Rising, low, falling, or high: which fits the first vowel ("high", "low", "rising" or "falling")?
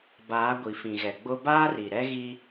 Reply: rising